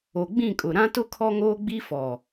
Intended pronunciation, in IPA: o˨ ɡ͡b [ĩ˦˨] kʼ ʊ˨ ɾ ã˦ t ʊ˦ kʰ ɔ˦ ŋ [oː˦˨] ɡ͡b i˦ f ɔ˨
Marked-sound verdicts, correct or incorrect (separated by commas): correct, incorrect